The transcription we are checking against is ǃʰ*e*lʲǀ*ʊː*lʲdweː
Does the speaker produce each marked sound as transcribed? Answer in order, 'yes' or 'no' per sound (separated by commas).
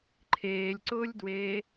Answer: no, yes